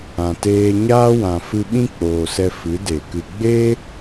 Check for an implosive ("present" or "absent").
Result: present